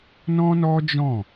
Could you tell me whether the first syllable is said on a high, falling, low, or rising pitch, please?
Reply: high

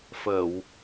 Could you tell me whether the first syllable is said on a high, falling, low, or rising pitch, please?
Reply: low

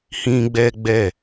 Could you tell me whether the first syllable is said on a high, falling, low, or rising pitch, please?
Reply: high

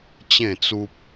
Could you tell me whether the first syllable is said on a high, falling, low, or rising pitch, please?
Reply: falling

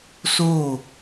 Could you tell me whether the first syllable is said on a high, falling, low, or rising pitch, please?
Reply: falling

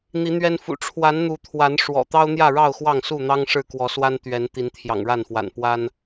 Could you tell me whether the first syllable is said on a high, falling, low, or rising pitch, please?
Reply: rising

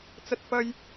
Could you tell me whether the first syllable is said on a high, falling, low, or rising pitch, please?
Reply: high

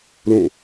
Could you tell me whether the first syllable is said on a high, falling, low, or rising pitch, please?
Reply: falling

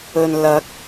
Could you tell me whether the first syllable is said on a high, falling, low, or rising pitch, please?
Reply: low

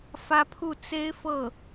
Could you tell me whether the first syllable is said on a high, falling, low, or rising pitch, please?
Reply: high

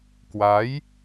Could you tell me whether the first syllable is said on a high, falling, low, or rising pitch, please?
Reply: rising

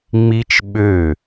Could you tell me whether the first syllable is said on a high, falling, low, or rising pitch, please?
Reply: high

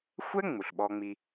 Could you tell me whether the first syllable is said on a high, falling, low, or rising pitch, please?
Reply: high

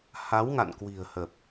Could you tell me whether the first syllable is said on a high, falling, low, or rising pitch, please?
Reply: rising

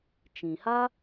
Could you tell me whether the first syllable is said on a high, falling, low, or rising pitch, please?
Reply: low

